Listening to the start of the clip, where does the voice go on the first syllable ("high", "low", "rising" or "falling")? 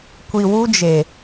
low